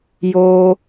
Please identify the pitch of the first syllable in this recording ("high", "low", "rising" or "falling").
high